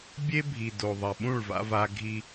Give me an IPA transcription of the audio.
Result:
bʲ e˦ bʱ i˨ d o˨ ðˤ ɐ˨ ɓ ũ˦˨ ɭ v a̰˦ v a˦ ɡʱ i˦

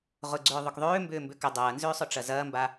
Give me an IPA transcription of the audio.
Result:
ʁ ʊ ɡ͡ǀ ʏː ðˤ ʊ k ðˤ øː m b ʏː m b ʏ k ʏ dˤ ɐː n z ʏː sˤ ʊ ʈ͡ʂ ɐ z ɐː m b a

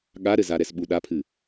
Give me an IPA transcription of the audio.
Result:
ɠ a ɾ ɘ z a ɾ ɛ s ɓ u ɗ a pʰ ɨ

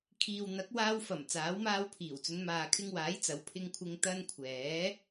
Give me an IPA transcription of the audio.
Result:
kʰ iː˨ w n̪ ɐ˨˥ k̚ w aː˧ w f ɐ˨˩ m t͡s aː˨˥ w m aː˧ w pʰ iː˨˩ w t͡s ɵ˨˧ n m aː˨ kʰ ɪ˧ ŋ w aː˨˥ j t͡s ɐ˨˧ w pʰ ɪ˧ ŋ kʷʰ ɪ˧ ŋ t̪ ɐ˧ n kʷʰ ɛː˨˥

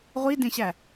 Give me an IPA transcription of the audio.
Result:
ʁʷ i d ẽ ɕ æ

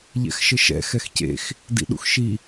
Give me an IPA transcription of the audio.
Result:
ʎ ɛ̰ x ʃ ɘ ʃ ɛ̰ x ɛ x c ḛ x | d ḭ ɗ ṵ x ʃ i

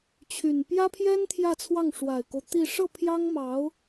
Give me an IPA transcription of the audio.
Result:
t͡ɕʰ y˨˩ n p j ä˥ pʰ j ɛ˥ n t̪ʰ j ä˥˧ t͡sʰ w ɑ˥˩ ŋ ʂ w a˨˩ ɪ̯ k o˦ ʊ̯ t̪ i˥˧ ʂ ɤ˥˩ pʰ j ɑ˥ ŋ m ɑ˧˥ ʊ̯

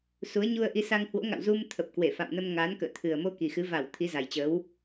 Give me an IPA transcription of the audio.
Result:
s u˨˦ ə̯ ɲ u˧ ə̯ ʔ i˧ s a˧ ŋ h w o̰˧˥ ŋ a̰˧˨ w z u˧ m t̪ʰ ə˨˩ p̚ k w e˧˩ f a̰˧˨ m n ə˧ m ŋ aː˨˦ n k ə̰ː˧˨ t̪ʰ ɨ˨˩ ə̯ m o˧ k i˨˩ x ɨ˨˦ v a˧˩ w t̪ʰ i˨˦ z a˨˩ j t͡ɕ ə˨˦ w

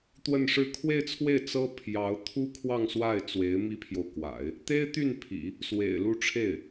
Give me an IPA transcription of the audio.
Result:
t̪ w ə˥˧ n ʂ ɻ̩˥˧ kʰ w e˥˧ ɪ̯ t͡sʰ w e˥˩ ɪ̯ t͡s ɤ˥ pʰ j ɑ˧˥ ʊ̯ t̪ʰ u˥ kʰ w ɑ˥˧ ŋ s w a˥˩ ɪ̯ t͡s w e˧˥ ɪ̯ m i˥ pʰ j o˨ ʊ̯ k w a̰˨˩˦ ɪ̯ | t̪ e˥ ɪ̯ t̪ y˥˩ n pʰ ḭ˨˩˦ | s w ḛ˨˩ ɪ̯ l u˥˧ ʈ͡ʂʰ e˥˩ ɪ̯

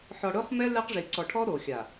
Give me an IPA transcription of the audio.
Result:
ħ ɔ˨ ɽ ʊ˦ χ m ɛ˦ l ɛ˦ q ʐ i˨ ǀ ɔ˨ ʈʰ ɔ˦ ɾ o˨ xʲ a˨

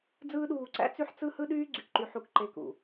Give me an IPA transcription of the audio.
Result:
d͡z ɯː˦ ɗ uː˧ ǀ æ̰˦ t͡s y˦ ħ t͡s ɯ˦ h ɯ˦ ɗ yː˦ ɡ͡ǀ y˨ k ǃ y˧ ħ u˧ k ǃ e˧ k ṵ˨

